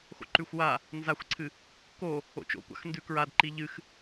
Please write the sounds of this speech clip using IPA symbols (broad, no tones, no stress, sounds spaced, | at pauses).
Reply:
x o̰ ǃ ʉ xʷ w a | n z a xʷ ǀʰ ɨ | k o | o̰ t͡ʃ o̰ kʷ a̰ x n d ʉ k ɹ a d ǃ i ʎ ɨ x